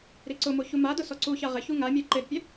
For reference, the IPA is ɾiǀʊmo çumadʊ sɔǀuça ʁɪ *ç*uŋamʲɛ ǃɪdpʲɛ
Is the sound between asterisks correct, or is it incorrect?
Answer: correct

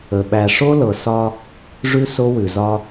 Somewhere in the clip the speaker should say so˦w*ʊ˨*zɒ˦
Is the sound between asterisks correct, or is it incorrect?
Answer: incorrect: ʉ˨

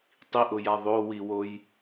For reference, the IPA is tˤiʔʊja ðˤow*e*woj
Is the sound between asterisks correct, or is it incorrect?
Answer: incorrect: i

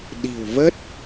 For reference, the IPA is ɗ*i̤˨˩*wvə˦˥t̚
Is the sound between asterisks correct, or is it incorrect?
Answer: correct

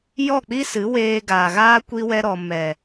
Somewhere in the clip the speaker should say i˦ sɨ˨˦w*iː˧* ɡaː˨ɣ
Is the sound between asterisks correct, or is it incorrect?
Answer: incorrect: eː˧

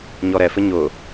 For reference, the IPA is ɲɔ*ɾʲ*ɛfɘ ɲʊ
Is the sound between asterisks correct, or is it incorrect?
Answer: incorrect: ɾ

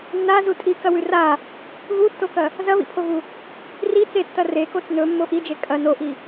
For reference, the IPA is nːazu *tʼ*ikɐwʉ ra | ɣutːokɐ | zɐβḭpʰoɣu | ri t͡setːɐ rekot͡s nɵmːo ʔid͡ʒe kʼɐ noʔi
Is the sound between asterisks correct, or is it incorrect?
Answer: correct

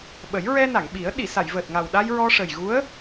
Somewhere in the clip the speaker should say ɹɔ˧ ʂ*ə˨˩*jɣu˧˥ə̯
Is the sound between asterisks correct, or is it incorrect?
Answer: correct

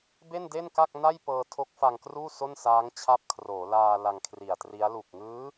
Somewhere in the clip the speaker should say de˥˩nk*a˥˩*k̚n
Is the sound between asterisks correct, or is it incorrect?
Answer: correct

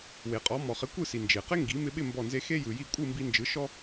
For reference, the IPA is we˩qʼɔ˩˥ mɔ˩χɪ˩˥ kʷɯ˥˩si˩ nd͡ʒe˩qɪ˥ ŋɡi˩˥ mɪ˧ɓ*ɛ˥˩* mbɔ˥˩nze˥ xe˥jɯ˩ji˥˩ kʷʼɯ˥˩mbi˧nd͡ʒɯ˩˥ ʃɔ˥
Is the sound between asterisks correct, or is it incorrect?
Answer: incorrect: ɪ˥˩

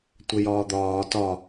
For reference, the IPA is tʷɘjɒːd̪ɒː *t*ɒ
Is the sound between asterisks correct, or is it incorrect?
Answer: correct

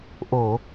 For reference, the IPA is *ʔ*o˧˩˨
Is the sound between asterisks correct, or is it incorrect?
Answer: correct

